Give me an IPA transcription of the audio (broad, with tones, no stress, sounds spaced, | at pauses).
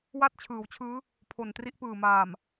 w a˥˩ t̚ t͡ɕʰ ɯː˩˦ w t͡ɕʰ ɯː˦˥ | pʰ o˨˩ n t r i˥˩ ʔ p ɯː˨˩ m aː˨˩ m